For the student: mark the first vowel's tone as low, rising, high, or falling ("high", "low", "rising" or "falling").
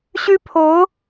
high